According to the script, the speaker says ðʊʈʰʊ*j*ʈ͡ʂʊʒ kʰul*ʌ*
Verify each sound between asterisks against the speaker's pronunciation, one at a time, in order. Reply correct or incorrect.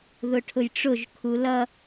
correct, correct

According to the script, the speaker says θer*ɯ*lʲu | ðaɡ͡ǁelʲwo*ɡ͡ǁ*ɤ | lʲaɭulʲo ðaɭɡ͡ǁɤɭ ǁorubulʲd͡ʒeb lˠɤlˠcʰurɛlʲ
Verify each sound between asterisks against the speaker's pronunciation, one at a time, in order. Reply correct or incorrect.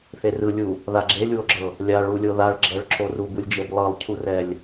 correct, correct

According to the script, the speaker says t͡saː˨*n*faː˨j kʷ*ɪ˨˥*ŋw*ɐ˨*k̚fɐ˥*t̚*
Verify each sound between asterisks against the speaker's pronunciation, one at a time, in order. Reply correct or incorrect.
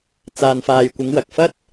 correct, incorrect, correct, correct

